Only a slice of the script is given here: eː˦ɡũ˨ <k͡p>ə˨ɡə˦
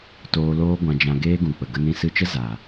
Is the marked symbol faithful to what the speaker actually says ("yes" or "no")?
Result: yes